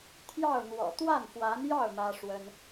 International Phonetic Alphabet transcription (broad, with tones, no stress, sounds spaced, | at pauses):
t̪ʰ j ɑ˥˩ ʊ̯ n̪ w ɔ̰˨˩ t̪ w a˥˩ n f w a˧˥ n j ɑ˥˩ ʊ̯ m ä˥ ʂ w ə˥ n